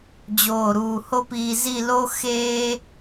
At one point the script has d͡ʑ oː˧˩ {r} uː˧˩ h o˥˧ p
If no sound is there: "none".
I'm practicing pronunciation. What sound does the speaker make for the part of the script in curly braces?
ɾ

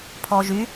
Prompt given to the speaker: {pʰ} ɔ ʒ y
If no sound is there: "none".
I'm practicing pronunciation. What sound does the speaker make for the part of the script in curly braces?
pʰ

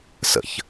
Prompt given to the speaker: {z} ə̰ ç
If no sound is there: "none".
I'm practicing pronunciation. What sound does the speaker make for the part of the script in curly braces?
s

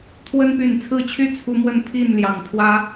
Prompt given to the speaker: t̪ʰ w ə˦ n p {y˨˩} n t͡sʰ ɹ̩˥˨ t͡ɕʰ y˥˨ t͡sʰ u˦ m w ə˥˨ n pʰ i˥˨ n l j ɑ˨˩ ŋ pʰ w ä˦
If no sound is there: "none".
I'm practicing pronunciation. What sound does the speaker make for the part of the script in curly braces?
y˨˩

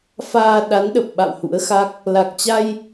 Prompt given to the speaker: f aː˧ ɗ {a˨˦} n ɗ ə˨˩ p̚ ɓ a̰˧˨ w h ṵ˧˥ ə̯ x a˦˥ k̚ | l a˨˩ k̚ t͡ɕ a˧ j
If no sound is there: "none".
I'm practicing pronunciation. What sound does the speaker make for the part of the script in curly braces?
a˨˦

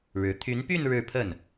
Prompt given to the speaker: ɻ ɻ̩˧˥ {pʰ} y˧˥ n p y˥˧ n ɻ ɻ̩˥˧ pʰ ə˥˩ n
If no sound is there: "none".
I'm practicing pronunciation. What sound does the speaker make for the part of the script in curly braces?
t̪ʰ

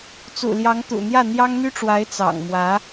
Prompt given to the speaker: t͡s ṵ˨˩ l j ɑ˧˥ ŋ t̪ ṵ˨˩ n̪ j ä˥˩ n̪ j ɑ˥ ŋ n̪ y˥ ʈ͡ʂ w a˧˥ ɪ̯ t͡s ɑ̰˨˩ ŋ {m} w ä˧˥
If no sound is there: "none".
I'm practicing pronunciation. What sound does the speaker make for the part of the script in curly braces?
m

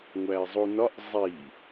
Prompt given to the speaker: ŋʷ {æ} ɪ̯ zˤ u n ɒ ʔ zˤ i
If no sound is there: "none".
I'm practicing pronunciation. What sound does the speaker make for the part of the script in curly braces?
æ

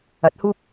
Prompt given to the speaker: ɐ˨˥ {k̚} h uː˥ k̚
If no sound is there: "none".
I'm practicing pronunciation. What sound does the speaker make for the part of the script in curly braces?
t̚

